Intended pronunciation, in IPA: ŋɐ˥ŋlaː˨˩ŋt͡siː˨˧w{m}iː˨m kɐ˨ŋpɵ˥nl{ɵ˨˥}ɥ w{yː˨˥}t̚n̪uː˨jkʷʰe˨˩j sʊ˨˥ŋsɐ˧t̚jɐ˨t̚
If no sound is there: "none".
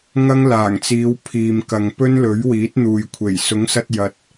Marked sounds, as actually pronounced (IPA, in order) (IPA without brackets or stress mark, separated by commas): pʰ, ɵ˨˥, iː˨˥